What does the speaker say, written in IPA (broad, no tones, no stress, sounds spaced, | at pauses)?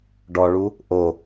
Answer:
ɖ ɔ ɭ u | ʔ o